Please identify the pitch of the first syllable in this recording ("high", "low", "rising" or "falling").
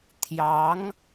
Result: rising